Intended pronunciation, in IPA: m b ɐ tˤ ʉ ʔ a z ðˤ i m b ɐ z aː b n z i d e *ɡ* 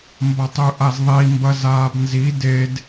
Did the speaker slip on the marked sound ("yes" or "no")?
yes